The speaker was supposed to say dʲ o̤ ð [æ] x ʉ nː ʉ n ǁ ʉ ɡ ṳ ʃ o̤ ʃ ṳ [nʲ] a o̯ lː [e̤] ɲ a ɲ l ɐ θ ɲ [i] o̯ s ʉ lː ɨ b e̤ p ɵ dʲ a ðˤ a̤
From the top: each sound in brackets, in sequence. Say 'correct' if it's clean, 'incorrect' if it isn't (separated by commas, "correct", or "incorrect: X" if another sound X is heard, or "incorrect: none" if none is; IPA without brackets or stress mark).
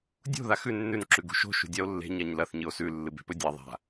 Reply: incorrect: a, incorrect: dʲ, correct, incorrect: ɨ